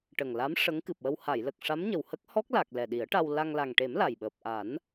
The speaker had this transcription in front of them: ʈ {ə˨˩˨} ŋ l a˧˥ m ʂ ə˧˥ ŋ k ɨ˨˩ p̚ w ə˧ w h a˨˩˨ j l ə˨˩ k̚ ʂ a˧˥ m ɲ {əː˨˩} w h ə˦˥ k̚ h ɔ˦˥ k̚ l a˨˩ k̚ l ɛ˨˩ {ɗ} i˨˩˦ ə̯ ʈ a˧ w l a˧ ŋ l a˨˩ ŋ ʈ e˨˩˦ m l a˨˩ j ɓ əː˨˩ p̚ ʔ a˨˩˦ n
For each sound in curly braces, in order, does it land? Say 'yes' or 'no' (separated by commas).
no, no, yes